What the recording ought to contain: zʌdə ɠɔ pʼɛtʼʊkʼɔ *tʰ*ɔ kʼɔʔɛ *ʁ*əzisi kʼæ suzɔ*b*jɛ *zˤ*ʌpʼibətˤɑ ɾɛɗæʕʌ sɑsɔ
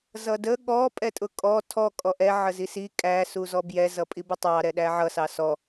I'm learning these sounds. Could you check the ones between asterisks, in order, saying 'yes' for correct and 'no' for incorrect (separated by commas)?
yes, no, yes, no